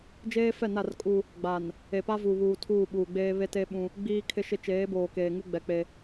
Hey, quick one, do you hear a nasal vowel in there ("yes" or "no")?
yes